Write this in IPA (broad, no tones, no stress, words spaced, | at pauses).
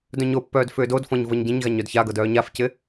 dœ̃ɲopːœːd fʏːdodfɔ̃ɲ vɤɲɟẽɲɣaɲ œdçaɡɤd œːɲafcɪ